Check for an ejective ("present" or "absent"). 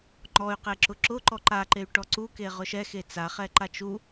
absent